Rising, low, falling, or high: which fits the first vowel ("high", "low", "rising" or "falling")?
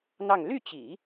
falling